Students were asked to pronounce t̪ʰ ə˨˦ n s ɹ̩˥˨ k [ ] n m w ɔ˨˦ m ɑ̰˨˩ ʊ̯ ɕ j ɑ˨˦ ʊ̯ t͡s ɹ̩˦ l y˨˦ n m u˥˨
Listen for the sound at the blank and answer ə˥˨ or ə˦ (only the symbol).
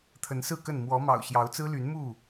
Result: ə˥˨